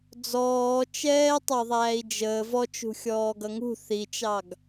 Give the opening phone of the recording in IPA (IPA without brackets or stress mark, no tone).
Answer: d͡z